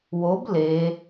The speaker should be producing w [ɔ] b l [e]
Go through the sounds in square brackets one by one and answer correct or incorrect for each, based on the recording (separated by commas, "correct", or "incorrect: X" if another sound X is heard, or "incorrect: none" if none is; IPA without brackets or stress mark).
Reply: incorrect: o, correct